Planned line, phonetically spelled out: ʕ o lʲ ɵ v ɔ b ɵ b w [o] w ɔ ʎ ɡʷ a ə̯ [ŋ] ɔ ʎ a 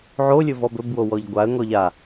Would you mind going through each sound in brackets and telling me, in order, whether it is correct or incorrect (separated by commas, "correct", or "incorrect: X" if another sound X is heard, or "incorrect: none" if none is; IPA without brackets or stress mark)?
correct, correct